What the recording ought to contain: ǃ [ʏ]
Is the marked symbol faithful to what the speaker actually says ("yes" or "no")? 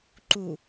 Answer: no